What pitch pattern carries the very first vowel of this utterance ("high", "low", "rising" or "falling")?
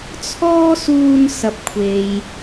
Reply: high